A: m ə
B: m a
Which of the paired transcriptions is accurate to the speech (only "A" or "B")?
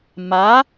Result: B